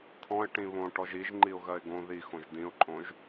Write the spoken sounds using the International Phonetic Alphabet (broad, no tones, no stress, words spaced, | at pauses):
t̪ʰɔ̃ɪ̯ ʈĩβõ ʈɔʒiʒ ŋ͡ǃiʊ̯ɣɜɪ̯ɡõ ði xõʒdĩʊ̯ǃʼõʒ